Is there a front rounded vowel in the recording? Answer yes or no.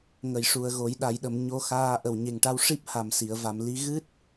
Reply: no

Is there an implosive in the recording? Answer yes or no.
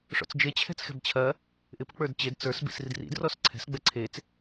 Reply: no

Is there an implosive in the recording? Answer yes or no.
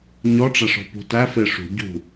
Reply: no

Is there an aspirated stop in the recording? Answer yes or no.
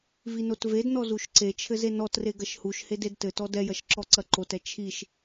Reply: yes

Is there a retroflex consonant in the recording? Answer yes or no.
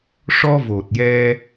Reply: yes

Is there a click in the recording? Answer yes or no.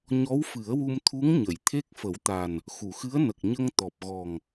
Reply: no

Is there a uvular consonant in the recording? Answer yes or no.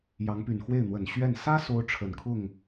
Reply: no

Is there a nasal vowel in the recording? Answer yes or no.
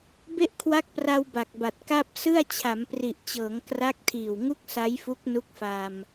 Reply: no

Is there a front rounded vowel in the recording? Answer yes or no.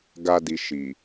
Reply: no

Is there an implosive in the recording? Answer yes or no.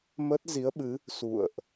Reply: yes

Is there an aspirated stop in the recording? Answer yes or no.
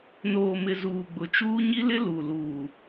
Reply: no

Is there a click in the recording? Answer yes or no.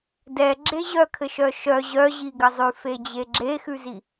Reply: yes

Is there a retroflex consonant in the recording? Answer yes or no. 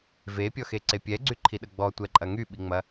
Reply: no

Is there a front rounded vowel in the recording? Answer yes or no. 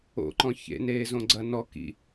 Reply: no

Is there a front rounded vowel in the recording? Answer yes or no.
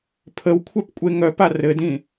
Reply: yes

